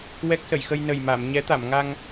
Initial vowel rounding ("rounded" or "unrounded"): unrounded